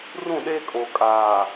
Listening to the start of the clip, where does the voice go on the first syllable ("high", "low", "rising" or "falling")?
falling